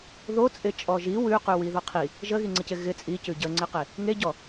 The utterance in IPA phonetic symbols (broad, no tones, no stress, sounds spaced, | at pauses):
ð o t͡sʼ ɪ t͡ʃʼ ɔ ʒ i w ʉ q ʉ w i ð ɔ qʰ i | ʒ ə ɣ i ŋ͡ǀ ɪ c ɪ ɣ ɪ t͡sʼ i c ʉ ɟ ə ŋ͡ǀ ɪ q e | ŋ e ɟ ɔ